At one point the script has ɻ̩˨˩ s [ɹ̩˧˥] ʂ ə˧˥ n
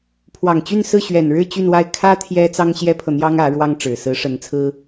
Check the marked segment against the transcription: correct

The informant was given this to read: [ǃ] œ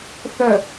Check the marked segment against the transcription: incorrect: θ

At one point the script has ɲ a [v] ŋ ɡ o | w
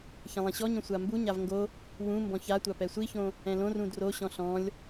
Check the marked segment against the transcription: correct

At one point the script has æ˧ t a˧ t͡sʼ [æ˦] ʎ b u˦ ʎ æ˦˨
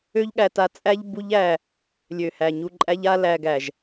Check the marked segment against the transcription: correct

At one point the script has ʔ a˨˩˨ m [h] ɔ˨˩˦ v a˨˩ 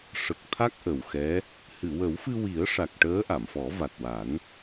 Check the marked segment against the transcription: incorrect: f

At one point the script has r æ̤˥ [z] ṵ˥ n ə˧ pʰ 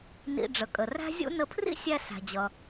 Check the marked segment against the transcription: incorrect: zʲ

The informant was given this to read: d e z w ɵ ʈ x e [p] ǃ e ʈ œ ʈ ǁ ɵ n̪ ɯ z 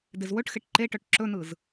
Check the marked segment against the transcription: incorrect: ʈ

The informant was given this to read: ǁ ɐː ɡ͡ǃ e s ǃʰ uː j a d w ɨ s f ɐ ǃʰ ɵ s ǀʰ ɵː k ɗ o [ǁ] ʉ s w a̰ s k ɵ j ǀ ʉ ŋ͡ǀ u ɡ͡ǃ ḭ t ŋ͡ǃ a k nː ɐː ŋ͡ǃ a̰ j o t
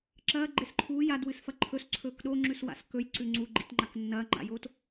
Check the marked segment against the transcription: incorrect: ŋ͡ǁ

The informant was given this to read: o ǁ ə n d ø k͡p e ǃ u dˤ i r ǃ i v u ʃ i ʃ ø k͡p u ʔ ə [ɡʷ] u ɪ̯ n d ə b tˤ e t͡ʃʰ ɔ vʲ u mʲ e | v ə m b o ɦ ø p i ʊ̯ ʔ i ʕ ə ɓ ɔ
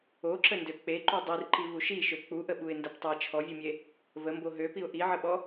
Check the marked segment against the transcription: incorrect: ɓ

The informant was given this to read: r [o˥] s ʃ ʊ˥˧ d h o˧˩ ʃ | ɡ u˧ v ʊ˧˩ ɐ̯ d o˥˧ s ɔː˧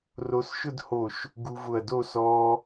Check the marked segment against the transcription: incorrect: o˧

